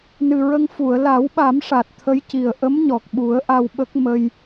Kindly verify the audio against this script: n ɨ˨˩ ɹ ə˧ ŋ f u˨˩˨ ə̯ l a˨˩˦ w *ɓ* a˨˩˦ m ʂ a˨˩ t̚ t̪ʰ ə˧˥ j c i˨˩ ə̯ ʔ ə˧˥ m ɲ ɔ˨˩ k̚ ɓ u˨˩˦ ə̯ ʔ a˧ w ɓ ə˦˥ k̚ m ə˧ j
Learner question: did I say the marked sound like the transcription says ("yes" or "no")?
yes